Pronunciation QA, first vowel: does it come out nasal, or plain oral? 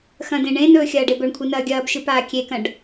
nasal